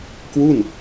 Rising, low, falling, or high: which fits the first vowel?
falling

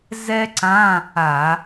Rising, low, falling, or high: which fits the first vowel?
high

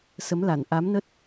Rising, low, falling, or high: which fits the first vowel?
rising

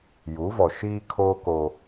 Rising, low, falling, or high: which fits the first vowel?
rising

